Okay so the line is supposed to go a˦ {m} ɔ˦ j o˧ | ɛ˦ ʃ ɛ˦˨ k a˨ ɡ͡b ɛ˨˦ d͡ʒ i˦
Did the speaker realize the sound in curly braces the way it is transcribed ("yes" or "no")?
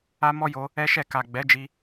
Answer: yes